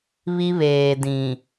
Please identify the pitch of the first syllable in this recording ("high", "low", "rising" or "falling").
high